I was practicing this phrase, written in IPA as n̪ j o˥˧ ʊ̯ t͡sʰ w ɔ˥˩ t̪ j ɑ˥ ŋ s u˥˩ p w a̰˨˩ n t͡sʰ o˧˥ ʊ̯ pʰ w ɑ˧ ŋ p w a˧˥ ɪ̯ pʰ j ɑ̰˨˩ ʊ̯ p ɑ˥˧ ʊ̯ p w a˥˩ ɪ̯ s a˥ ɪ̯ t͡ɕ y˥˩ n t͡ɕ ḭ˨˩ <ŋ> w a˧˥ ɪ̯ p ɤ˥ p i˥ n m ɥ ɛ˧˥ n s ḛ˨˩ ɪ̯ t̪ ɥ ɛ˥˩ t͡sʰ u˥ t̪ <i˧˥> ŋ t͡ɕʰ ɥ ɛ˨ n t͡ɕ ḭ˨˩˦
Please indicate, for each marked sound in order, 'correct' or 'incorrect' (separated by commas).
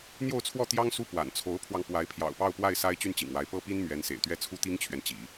correct, incorrect